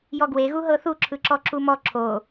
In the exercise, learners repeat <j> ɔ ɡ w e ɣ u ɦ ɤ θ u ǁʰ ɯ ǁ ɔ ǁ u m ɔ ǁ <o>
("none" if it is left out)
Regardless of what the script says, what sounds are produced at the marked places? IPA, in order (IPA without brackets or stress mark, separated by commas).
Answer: j, o